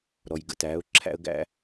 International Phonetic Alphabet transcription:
ɾ ɔ˨ j ɡ ə̰˨˦ t æː˨˦ ʊ̯ ǁʰ æ̰˦ ə̯ ɡ æ̰˦

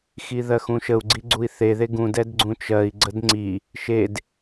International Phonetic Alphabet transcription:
x i ð ɜ x ũ ʃ ə u̯ ɡ͡ǀ i ɡ͡ǀ u i̯ θ e ð e ɡ ũ d ɛ d ɡ͡ǀ ũ t͡ʃ ɜ i̯ ɡ͡ǀ ə d ŋ͡ǀ i | ʃ e d

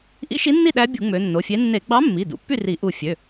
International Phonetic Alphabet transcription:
ʔ ḭ˧˥ ʃ i˧˥ nː i˥˨ ɗ æ˧˥ bʲ u˧˩˧ ŋ͡m ø˩˧ nː o˩˧˩ fʲ e˧˥ nː e˧˩˧ ɡ͡b ɑ˧˥ mː i˩˧˩ d ṵ˩˧ pː y˥˨ r i˧˩˧ ʔ u˧˩ fʲ ø˩˧˩

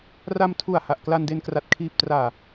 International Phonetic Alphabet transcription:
r a˧ m tʰ u˨˩ a̯ h a˨˩ ʔ k l a˧ n d e˧ n k r a˨˩ t̚ kʰ iː˨˩ p̚ t r aː˨˩

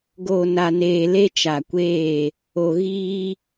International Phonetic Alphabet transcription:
ɡ o˨ n a˨ n eː˨ l e˦ t͡ʃ a˨ kʷ eː˦˨ | o˨ ɣ iː˦

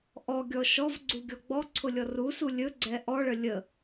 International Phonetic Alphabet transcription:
ʔ ɔ ɡʲ ɔ ʃ ɔ v ɡ͡ǀ u ɡʲ ɔ ɡ͡b ɔ ǀʰ ʊ lʲ ɔ r u s u lʲ ɵ ɡ͡ǀ ɛ ʔ ɔ ɭ ə lʲ ə

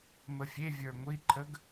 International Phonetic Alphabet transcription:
m ə fʲ e vʲ ə˞ ŋʷ i ǃʰ ə ɡ

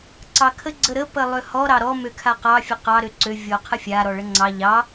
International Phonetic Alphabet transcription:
ǀ ɑ kʰ ə ɡ͡ǀ ə ɾ ə p ə lˠ ø h ɔ ɾ ɑ ɾ ɔ m ø kʰ a q ɑ fʲ ə q ɑ ɾ ø ǀ ø vʲ ɔ qʰ ə fʲ a ɾ ɔ ɭ ə ŋ͡ǀ ɑ ʎ ɑ

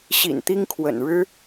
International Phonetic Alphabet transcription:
ɕ ḭ˨˩ n t̪ i˥ ŋ kʰ w ə̰˨˩ n ɻ ɻ̩˥

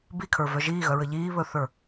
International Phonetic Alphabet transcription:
b i kʰ ə˞ v œ ʒ iː ɣ œ ɹ ə ʎ iː β ɵ θ ə˞

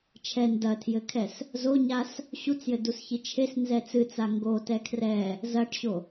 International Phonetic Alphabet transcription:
t͡ʃʰ ɛ n d ɐ tʰ j ɘ kʰ ɛ s | z o ɲ a s | ɕ u t͡s j ɘ d u s ç i t͡ʃʰ e s n z ɛ t͡s ɨ t͡s a ŋ ɡ o t ɛ kʰ r ɛ | z ɐ ʈ ɕ o

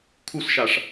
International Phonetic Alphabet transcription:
kʰ u s ʃ a ʂ

